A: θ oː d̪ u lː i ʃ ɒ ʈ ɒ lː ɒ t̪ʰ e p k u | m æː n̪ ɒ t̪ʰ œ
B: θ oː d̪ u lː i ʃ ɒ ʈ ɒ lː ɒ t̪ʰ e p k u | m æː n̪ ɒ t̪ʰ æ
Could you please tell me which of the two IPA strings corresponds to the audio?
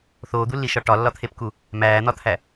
B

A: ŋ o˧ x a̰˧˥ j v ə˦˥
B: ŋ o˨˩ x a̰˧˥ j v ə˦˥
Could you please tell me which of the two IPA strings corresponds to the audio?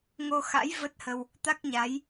A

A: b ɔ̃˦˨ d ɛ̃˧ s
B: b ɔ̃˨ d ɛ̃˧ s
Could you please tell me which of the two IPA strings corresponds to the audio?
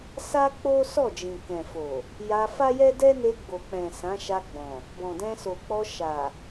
B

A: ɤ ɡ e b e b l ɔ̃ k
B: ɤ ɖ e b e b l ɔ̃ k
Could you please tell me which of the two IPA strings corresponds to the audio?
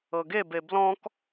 A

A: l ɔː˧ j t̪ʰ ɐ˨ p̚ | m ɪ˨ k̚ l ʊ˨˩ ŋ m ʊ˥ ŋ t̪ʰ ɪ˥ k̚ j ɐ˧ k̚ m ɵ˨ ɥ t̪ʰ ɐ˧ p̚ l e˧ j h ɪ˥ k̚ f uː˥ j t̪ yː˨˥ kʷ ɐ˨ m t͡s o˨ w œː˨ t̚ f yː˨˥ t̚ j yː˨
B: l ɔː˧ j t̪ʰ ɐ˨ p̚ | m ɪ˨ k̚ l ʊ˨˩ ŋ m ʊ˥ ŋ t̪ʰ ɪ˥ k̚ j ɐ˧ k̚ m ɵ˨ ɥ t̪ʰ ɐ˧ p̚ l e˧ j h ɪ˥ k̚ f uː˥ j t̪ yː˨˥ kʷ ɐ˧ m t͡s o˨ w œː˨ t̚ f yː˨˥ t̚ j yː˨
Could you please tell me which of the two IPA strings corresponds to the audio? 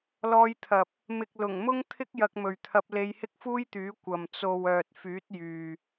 A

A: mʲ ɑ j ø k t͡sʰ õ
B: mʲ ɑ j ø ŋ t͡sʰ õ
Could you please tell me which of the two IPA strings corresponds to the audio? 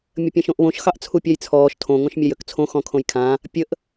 A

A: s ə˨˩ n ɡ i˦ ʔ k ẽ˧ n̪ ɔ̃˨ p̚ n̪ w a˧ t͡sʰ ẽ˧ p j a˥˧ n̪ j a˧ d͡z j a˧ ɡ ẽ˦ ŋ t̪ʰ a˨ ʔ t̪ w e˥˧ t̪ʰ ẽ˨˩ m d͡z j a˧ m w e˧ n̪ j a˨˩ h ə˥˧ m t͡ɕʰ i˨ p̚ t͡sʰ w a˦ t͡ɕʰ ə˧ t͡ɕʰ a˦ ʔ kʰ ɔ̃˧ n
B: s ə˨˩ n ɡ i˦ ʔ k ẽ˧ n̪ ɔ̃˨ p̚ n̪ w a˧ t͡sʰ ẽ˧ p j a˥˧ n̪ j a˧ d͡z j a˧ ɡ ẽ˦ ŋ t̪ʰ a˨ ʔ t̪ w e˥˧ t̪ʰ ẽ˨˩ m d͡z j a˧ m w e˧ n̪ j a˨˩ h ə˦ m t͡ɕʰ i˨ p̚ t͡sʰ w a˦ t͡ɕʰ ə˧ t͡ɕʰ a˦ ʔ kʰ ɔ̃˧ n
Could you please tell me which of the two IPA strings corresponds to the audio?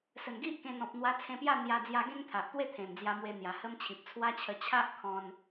B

